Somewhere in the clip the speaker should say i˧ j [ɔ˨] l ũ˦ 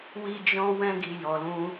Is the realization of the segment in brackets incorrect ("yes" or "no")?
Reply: yes